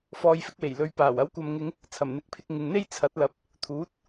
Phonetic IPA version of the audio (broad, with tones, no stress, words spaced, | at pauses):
fɔː˨jfɪ˧k̚we˨˩j lɵ˨ɥpaː˨˩w ɐ˨˥wkʷɐ˨mŋɪ˨˧ŋ | t͡sʰɐ˨˩mn̪ɪ˨˥k̚pʰɪ˧k̚ ŋɪ˨ŋn̪e˥jt͡sʰɐ˨˥t̚lɐ˨˥p̚ | t̪ʰuː˨˥t̚